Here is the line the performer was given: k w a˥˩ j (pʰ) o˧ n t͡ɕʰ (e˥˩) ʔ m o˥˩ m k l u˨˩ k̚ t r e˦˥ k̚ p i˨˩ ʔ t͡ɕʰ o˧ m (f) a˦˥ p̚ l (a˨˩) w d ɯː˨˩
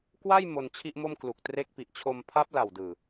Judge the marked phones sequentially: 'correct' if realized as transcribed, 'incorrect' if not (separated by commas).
incorrect, incorrect, incorrect, correct